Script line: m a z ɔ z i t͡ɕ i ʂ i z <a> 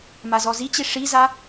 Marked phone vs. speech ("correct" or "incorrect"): correct